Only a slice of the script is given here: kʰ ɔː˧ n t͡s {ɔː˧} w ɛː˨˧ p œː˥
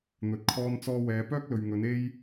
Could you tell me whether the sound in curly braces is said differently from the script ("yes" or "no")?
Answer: no